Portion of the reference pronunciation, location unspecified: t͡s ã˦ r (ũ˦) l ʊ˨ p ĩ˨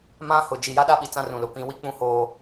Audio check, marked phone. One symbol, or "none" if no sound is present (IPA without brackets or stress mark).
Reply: ũ˨